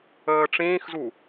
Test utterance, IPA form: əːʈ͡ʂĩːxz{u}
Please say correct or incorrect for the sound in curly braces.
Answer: correct